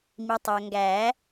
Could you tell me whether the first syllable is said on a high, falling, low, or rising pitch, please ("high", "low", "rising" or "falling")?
low